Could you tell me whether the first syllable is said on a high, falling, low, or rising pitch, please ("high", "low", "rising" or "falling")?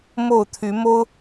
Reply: falling